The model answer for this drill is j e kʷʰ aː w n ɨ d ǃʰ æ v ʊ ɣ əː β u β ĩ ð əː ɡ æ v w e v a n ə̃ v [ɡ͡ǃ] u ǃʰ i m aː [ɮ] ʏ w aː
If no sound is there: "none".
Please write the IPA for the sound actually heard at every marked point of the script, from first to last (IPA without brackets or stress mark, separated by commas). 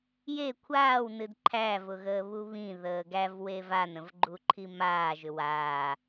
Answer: ɡ͡ǃ, ʒ